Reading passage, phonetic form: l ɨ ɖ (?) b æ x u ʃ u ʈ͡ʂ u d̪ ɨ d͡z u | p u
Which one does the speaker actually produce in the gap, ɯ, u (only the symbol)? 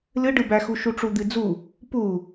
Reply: ɯ